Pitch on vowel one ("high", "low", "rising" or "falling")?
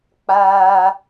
high